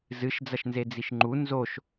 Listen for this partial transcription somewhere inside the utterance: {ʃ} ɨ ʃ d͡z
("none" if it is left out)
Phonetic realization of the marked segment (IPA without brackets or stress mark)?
z